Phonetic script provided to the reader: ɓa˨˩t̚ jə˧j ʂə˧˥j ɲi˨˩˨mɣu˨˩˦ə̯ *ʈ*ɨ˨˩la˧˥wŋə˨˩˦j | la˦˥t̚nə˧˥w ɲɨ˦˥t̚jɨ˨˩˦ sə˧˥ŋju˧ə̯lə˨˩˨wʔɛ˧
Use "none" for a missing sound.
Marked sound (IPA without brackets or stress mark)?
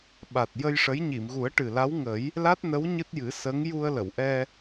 ʈ